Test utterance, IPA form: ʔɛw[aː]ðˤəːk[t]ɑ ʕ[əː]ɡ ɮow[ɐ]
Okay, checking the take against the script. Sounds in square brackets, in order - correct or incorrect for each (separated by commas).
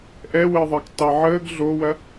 incorrect, correct, correct, correct